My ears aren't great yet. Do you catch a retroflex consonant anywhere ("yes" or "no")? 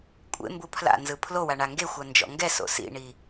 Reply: yes